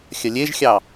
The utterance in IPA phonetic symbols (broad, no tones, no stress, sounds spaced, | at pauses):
xʲ ɐ lʲ e ʒ xʲ ɑ